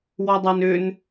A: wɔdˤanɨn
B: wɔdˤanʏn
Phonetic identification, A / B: B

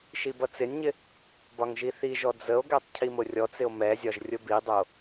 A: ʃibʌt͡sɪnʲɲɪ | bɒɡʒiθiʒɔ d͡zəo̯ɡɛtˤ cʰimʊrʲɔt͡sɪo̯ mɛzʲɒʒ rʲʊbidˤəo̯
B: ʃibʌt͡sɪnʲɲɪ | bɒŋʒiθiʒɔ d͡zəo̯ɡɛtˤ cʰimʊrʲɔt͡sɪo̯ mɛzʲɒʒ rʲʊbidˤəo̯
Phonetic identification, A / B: B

